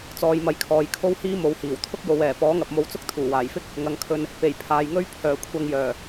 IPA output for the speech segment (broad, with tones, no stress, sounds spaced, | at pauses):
t͡s ɔː˨˧ j m ɐ˨˧ j kʰ ɔː˨ j kʰ o˥ w h iː˥ m o˨˧ w h iː˨˩ w t̪ʰ ʊ˥ k̚ j o˨˧ w ɛː˨˩ p ɔː˨˥ ŋ ɐ˨ p̚ m o˧ w t͡s ʊ˥ k̚ t̪ʰ uː˨˩ w aː˨˩ j f ɪ˥ k̚ | ŋ ɐ˨˧ ŋ kʰ ɵ˧ n | p e˨˩ j pʰ aː˨ j ŋ ɵ˥ ɥ pʰ œː˨˩ kʷʰ ɐ˧ ŋ j œː˨˩